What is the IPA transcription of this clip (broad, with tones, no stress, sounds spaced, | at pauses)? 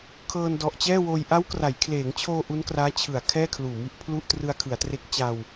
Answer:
kʰ ɤː˧ n d ɔ˨˩ ʔ t͡ɕ ɛː˥˩ w oː˧ j ʔ a˦˥ w k r a˩˦ j kʰ l eː˩˦ ŋ t͡ɕʰ oː˧ ʔ u˦˥ n k r aː˦˥ t͡ɕʰ ɯ˩˦ a̯ kʰ ɛː˥˩ kʰ l uː˨˩ m i˥˩ ʔ pʰ l u˥˩ ʔ t r ɯ˧ a̯ kʰ ɯ˩˦ a̯ t r e˦˥ k̚ t͡ɕ a˧ w